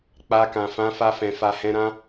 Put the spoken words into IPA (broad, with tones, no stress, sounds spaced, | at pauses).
k͡p a˧ k ã˨ f ã˨˦ f a˧ f ɛ̃˨ f a˨ h ɛ̃˨˦ ɾ ã˦